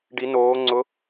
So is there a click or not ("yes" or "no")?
yes